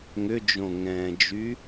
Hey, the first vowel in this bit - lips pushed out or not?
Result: yes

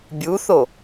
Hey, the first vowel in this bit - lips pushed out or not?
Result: yes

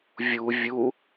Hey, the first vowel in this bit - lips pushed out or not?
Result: yes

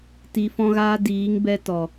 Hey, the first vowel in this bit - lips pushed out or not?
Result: no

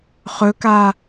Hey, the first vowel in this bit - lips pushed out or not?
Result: yes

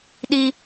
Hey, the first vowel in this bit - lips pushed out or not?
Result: no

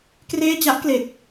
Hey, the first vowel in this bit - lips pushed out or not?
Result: no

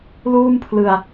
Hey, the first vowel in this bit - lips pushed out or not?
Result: yes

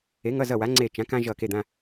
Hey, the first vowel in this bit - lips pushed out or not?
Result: no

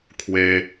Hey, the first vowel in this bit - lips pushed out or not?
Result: no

